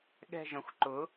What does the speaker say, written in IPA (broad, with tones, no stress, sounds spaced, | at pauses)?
ɠ ɛ̤˦˨ ʒ ə̃˩˥ xʷ ǃ ʊ˩˥